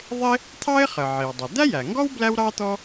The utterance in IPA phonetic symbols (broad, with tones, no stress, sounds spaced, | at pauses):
ðˤ ɪ˥ | t̪ʰ ɑ˥ ɪ̯ χ ə˩ ʕ i˩ w dˤ ʌ˩ d̪ æ˥ j æ˩ ŋ ɡ ɔ˥ w b l æ˥ w ɾ ɑ˥ t̪ ɔ˥